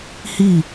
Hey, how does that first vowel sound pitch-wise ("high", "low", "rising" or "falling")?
falling